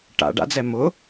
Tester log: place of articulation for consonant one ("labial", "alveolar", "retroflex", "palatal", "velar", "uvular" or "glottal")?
retroflex